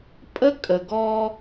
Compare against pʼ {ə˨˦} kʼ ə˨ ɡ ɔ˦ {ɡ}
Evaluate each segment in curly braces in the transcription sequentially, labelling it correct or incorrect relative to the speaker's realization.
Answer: incorrect, incorrect

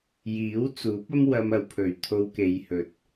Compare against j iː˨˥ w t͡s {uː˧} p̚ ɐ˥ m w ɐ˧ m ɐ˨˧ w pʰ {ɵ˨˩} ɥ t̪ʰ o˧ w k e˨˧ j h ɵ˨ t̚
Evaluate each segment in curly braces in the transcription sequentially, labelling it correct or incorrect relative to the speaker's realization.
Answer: incorrect, correct

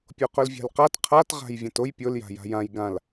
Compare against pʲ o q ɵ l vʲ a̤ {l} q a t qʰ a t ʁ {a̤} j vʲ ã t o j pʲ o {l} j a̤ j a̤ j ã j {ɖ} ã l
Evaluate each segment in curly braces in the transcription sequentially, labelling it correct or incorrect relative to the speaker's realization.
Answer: correct, correct, correct, incorrect

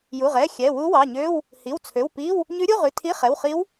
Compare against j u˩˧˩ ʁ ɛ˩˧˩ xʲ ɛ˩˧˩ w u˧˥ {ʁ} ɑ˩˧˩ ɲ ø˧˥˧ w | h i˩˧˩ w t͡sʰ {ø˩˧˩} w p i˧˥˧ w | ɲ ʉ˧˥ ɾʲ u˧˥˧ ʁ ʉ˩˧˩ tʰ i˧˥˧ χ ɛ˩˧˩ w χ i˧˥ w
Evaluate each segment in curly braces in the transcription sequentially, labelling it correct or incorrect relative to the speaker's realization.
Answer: incorrect, correct

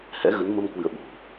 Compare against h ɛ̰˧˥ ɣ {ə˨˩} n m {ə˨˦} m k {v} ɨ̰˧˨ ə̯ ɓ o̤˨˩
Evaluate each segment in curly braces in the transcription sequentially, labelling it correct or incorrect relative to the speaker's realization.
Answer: incorrect, incorrect, incorrect

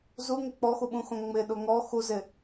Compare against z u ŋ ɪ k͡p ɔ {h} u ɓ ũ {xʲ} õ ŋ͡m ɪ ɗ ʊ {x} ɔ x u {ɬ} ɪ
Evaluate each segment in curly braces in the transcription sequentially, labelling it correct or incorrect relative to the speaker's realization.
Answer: incorrect, incorrect, incorrect, incorrect

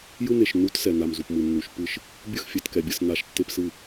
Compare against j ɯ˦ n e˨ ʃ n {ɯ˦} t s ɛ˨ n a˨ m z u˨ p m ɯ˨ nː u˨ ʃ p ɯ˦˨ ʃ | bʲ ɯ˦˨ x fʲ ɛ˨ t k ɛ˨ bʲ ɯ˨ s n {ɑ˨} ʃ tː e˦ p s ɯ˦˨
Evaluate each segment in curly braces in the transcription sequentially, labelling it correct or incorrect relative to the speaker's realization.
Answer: incorrect, incorrect

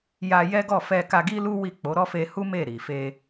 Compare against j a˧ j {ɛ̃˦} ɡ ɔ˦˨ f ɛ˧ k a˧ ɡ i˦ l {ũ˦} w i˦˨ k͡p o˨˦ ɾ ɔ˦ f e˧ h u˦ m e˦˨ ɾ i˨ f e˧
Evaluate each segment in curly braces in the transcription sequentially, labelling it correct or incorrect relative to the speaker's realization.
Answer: incorrect, incorrect

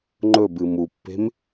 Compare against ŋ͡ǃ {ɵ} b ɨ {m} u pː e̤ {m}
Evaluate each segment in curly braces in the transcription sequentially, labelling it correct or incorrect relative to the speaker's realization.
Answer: correct, correct, correct

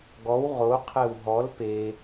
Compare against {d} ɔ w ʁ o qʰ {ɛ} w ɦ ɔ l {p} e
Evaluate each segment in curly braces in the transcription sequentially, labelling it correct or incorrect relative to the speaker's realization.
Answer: incorrect, correct, correct

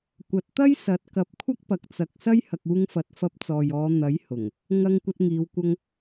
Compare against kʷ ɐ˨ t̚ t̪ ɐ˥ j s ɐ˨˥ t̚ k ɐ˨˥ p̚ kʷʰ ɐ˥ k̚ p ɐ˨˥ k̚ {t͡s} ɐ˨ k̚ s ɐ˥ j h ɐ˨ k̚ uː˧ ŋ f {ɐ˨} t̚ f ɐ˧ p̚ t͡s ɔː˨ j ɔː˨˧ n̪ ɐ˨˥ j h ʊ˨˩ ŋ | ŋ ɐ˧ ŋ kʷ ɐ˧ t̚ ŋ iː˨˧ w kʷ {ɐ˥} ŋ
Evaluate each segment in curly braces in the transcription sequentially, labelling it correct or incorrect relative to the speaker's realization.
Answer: correct, incorrect, incorrect

